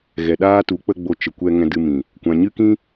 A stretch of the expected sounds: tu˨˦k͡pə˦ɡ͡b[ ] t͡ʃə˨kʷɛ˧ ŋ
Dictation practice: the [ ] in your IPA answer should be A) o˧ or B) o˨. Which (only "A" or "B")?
A